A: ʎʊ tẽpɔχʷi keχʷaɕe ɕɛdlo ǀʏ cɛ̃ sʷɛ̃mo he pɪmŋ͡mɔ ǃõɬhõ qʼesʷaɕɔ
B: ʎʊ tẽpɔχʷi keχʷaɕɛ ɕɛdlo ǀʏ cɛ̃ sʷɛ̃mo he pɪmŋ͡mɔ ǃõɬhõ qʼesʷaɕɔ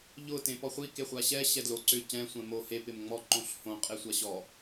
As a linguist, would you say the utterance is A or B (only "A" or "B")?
B